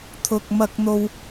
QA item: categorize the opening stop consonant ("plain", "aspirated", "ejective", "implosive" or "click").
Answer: aspirated